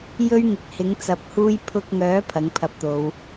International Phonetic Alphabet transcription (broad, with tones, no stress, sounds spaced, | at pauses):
j ɵ˥ ɥ ŋ ɪ˨ k̚ h ɪ˨˥ ŋ t͡s ɐ˨˥ p̚ h uː˥ j pʰ ʊ˧ k̚ ŋ œː˨˥ pʰ ɐ˨˥ ŋ pʰ ɐ˧ p̚ t̪ o˨˧ w